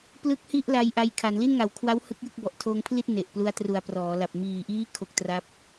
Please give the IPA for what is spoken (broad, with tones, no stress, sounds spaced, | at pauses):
p l ɯ˦˥ k̚ h i˥˩ ʔ l a˧ j ʔ a˧ j kʰ a˩˦ n l i˥˩ n ŋ a˨˩ w kʰ w a˦˥ w h ɯ˦˥ k̚ j ɯ˥˩ k̚ b ɔ˨˩ ʔ tʰ oː˧ ŋ pʰ l i˥˩ t̚ n e˨˩ ʔ p l u˦˥ a̯ t r u˨˩ a̯ p r ɔː˩˦ l a˨˩ p̚ m iː˨˩ ʔ iː˦˥ kʰ o˦˥ k̚ t r a˥˩ p̚